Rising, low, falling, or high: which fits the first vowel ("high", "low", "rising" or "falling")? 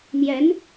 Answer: rising